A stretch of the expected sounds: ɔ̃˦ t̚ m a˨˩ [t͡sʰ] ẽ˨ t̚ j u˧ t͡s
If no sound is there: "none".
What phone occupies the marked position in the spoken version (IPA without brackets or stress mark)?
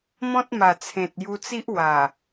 t͡sʰ